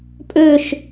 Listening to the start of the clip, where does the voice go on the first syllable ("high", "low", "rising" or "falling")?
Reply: falling